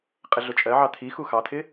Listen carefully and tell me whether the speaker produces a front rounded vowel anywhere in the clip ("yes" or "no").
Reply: no